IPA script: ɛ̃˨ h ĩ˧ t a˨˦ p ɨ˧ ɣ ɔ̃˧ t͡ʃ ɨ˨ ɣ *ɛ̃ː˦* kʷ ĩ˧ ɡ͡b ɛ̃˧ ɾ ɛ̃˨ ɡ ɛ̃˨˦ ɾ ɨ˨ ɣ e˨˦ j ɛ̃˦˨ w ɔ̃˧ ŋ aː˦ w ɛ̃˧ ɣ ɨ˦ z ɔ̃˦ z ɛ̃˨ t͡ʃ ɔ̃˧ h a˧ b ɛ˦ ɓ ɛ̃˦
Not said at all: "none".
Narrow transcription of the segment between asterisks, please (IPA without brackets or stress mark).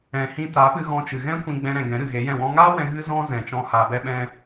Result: ɛ̃˦